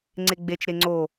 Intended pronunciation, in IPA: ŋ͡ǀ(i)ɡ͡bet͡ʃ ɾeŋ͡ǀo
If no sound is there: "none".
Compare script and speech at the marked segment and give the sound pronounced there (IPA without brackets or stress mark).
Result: e